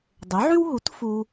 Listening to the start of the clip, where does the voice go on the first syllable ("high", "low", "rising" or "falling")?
rising